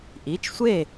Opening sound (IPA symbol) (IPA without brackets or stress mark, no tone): ʔ